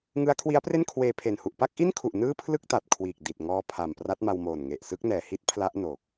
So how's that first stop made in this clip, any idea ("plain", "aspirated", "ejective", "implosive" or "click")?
aspirated